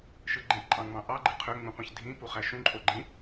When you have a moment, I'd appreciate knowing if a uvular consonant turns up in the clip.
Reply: yes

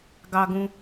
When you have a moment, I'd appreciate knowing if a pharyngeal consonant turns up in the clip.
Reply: no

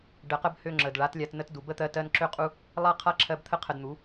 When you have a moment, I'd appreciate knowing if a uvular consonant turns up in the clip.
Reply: yes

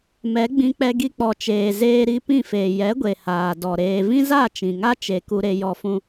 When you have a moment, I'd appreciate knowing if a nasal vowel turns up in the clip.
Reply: yes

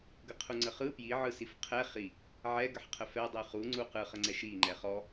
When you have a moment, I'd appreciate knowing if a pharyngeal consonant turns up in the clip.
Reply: yes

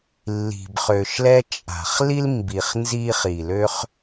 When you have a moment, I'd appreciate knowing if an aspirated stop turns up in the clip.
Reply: no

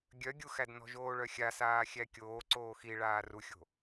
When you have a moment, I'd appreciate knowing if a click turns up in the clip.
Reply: yes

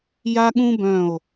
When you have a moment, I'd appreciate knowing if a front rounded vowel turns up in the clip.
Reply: yes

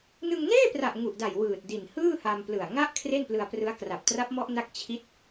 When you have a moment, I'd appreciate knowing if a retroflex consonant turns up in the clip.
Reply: no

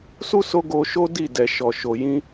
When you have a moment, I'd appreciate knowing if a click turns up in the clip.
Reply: no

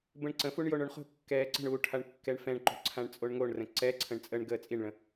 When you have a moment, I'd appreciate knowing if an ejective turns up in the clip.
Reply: yes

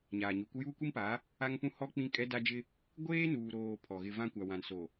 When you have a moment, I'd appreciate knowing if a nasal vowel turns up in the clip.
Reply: yes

